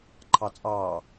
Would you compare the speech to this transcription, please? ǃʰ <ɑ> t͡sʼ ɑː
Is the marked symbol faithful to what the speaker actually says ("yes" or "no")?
yes